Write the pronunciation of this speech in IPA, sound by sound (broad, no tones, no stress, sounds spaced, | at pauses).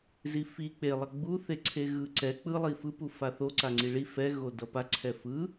z i f i k͡p e lˠ ʌ ɡ͡b u θ e ǀʰ e ɣ ɯ ǀ ɛ k͡p ɯ lˠ i f ɯ p u f a θ o ǀ a ŋ͡ǀ i ɭ i f ɛ ɣ o d ʌ p a ǀʰ ɛ f ɯ